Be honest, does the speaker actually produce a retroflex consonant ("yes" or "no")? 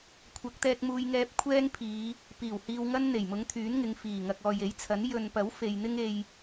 no